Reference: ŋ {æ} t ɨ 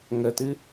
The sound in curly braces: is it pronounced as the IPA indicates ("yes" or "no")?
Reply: no